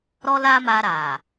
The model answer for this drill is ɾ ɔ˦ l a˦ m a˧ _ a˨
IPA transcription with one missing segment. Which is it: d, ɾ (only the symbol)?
ɾ